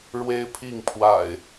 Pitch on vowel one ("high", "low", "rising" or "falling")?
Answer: high